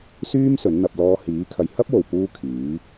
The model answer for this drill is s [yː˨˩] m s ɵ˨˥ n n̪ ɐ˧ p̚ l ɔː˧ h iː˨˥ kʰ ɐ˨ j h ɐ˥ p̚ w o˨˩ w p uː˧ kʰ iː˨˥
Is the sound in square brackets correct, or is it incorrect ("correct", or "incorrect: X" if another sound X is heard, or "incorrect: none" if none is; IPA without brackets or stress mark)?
incorrect: yː˥